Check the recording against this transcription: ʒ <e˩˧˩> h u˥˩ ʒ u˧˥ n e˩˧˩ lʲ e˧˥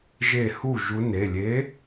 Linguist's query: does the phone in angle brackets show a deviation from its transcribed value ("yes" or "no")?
yes